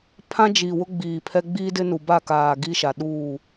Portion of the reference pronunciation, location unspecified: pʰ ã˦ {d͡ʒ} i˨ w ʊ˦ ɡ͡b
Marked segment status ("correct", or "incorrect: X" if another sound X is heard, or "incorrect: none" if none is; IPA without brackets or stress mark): correct